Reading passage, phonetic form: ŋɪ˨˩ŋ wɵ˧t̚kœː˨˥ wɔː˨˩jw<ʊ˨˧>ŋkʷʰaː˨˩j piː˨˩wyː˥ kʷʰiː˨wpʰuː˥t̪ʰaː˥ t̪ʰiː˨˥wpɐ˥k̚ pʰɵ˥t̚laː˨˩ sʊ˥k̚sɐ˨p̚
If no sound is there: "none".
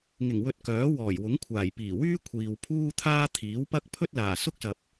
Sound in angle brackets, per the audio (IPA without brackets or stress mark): ʊ˨˥